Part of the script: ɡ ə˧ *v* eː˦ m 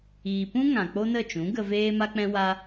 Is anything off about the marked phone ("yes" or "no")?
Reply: no